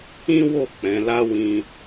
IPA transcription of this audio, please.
ĩ˦ w o˦˨ k͡p ɛ̃˨˦ l a˦ w ĩ˧

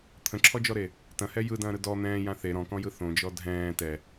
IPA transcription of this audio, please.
t̪ʰ ə̃ ǁʰ ɔ d͡ʒ ɔ ɾ e | t ɐ̃ h ɛ j ɯ d ɐ̃ː ɾ ɯ d ɔ n̪ ɛ̃ː j ã θ e ɾ ɔ̃ k ɔ̃ j ɯ θ õ d͡ʒ ɔ dʱ ɛ̃ː t ɛ

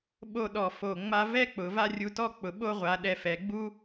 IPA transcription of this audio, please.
ɓ o˥˧ ɗ ɔ˧˩ f o˧˩ ŋ͡m a˥ v ɛ˥ k͡p ʊ˩˧ v a˥˧ rʲ u˧ t ɔ˥˧ k͡p ʊ˩˧ ɓ o˥˧ ʁʷ a˩˧ ɗ ɛ˧ f ɛ˩˧ ɡ͡b u˥

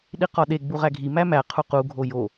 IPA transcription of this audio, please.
ɗ i q ɒ ɗ e ɡ͡b u ʁ æ ɡʱ i m æ m æ qʰ u q u ɡʱ o j o

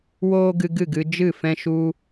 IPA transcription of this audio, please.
w oː˦ ɡ ɨ˧ ɡ ɨ˦˨ ɡ ɨ˧ d͡ʒ ɨ˦˨ f ɛ̃˦ ʃ u˧

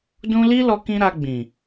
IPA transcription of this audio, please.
d ũ˦ l i˦ l ɔ˧ k ĩ˧ ɾ a˧ ɡ͡b ĩ˨

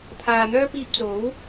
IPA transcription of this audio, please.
t̪ʰ aː˨ n̪ œː˥ p iː˧ p̚ t͡s o˨˥ w

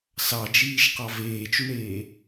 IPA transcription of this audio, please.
s ɑ d͡ʒ iː ʃ q ɑ v eː t͡ʃ u ɳ eː

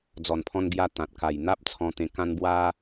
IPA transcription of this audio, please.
d͡z ɔ˨˩ n pʰ ɔ̃˧ n ɡ j a˧ t̪ ã˨ t̚ k a˨˩ j n̪ a˦ p̚ t͡sʰ ɔ̃˧ t̪ ẽ˧ k ã˦ n b w a˦

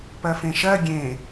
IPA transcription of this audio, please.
p ɜ f ẽ ʃ ɜ ɡʲ ẽ

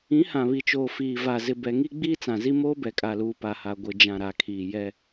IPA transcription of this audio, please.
ĩ˨˦ h ã˨ β i˨ t͡ʃ oː˨ f iː˨ v a˨ z ɪ˨ b ɛ˨ ŋ i˦ ɡ͡b iː˦ t͡s ã˨ z i˦ m oː˦ b ɛ˨ kʼ a˨ l uː˨ p a˨ h a˨ ɡʷ ɪ˨ d͡ʒ ã˨ ɾ a˨ kʰ iː˨ j ɛ˦

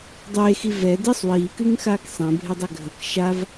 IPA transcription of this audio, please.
dˤ eː x i v ɛ d e sˤ w iː k ɨ ŋ x aː k sˤ ɛ̃ bʱ e dˤ ɛ ɡʱ ə k ʃ a v

